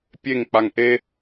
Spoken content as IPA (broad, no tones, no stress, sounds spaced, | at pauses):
pʲ e ŋ k͡p a ŋ ʔ e